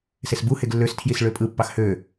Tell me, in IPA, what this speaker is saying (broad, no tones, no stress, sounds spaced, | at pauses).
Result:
s e s b u h e ɡ lː ø s tʰ j i s ɭ ø pʼ ɯ pː ɑ x h ø